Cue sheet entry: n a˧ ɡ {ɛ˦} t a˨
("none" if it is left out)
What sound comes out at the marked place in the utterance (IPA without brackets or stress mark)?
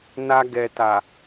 ɛ˨